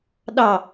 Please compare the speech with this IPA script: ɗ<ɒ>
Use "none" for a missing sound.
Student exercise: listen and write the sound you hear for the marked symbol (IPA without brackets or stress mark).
ɑ